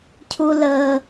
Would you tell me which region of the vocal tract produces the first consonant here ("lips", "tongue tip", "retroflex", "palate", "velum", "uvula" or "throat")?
palate